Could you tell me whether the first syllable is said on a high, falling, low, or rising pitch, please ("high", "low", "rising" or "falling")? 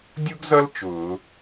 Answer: high